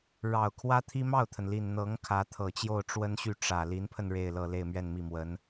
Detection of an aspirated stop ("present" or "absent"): present